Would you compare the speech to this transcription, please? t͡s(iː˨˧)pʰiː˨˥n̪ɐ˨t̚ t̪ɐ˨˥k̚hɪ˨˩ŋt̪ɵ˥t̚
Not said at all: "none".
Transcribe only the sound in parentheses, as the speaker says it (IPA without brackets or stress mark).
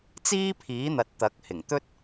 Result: iː˥